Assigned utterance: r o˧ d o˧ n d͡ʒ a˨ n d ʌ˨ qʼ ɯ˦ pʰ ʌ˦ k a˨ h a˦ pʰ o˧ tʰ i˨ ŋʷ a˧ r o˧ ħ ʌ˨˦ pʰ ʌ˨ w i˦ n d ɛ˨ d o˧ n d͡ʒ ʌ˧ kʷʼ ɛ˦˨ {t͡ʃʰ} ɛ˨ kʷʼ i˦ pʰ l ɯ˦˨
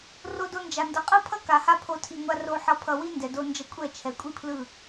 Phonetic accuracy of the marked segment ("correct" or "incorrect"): correct